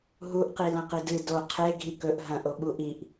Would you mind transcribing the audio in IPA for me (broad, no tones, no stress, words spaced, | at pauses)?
ɦuʔqi lɐ̃qidɨ do qʰe ɡʱikɵʔ ɦɐ̃ʔo ɓuʔiʔ